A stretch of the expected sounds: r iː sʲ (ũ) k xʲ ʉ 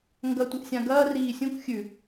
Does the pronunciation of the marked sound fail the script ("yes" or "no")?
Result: no